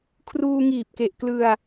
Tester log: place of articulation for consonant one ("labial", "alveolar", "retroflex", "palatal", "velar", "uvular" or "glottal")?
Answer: velar